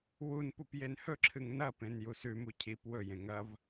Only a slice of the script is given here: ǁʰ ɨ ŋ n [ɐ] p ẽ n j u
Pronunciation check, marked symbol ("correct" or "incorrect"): correct